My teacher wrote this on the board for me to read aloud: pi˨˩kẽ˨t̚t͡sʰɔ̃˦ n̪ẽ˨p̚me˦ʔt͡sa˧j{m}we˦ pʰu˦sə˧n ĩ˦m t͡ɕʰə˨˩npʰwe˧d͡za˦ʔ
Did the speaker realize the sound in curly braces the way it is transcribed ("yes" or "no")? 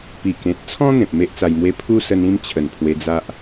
yes